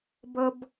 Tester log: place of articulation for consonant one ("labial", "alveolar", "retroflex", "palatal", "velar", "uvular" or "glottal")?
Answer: labial